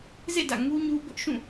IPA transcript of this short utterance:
z ḛ˦˨ d ä̰˦˨ ŋ u˦ ɲ u˦ b ʊ˦ ʔ ʃ ũ˦˨

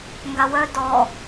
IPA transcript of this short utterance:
ŋ ɡ a w œ d ɔ

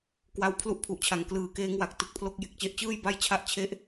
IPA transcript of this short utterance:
k w a˧ w pʰ l u˥˩ ʔ pʰ u˨˩ ʔ t͡ɕʰ a˩˦ ŋ k l ɯː˨˩ k eː˦˥ ŋ w a˨˩ k̚ t ɯ˨˩ k̚ pʰ l o˦˥ k̚ j e˨˩ k̚ t͡ɕ e˦˥ ʔ t͡ɕ ɯː˥˩ j b a˥˩ j t͡ɕʰ a˥˩ ʔ t͡ɕʰ e˦˥ ʔ

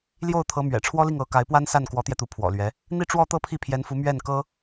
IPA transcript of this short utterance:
l j o˥˩ ʊ̯ t̪ʰ ɤ˧˥ m ɥ ɛ̰˨˩ ʈ͡ʂʰ w ɔ˥ l i˥˩ ŋ ɤ˧˥ k a˧˥ ɪ̯ p w a˥ n s a˥˩ n k w ɔ˧˥ t̪ j ɛ˧ t̪ u˧˥ pʰ w ɔ̰˨˩ l ɥ ɛ˧˥ | n̪ i˥˧ ʈ͡ʂ w ɔ˥˧ t̪ ɤ˥˧ pʰ i˥˩ pʰ j ɛ˧˥ n f u˧˥ m ɥ ɛ˥˩ n k ɤ˥

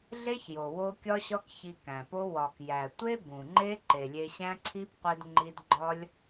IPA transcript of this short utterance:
ɮ e˦ ç j o˨ w o˧ kʲ ɒ˦ ɕ ɒ˦ k ç i˧ k æ̃˨ p o˦ w ɒ˨ k j æ˨ tʷ e˦ b ũ˨ ŋ͡ǃ e˦ ǃ e˨ lʲ e˧ ɕ æ̃˦ ǀʰ i˦ b qʷ e˧ d ŋ͡ǃ i˧ d ɡ͡ǃ ɒ˦ lʲ

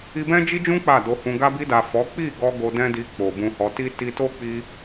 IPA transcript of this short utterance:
i˧ b ɛ̃˦ d͡ʒ i˦ d͡ʒ ũ˦ k͡p a˦˨ d o˧ h ũ˧ ɡ a˧ b i˧ d a˨ f ɔ˨˦ k͡p i˦˨ ɡ ɔ˧ ɡ o˧ d ɛ̃˦ d i˧ k͡p o˨ b ũ˧ h ɔ˧ t i˦ t i˧ t o˦ k͡p i˧

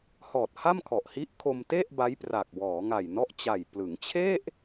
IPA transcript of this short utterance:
h ɔː˨˩ t̚ h a˥˩ m kʰ ɔ˨˩ ʔ h i˦˥ ʔ kʰ o˧ m t e˥˩ ʔ b a˦˥ j p r a˨˩ k̚ w ɔː˩˦ ŋ a˨˩ j n ɔ˦˥ ʔ t͡ɕ a˨˩ j p l ɯ˩˦ ŋ t͡ɕʰ e˥˩ ʔ

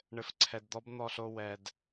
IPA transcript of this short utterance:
ɳ ɘ˨ f ǀʰ ɛ˨ d d̪ ɔ˦ b n̪ ɔ˨ ɬ o˦˨ w ɛ˨ d

